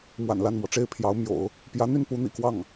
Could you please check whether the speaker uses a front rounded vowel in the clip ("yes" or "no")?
yes